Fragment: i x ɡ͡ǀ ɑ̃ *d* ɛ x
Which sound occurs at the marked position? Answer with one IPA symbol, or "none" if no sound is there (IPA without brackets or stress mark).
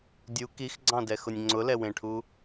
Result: d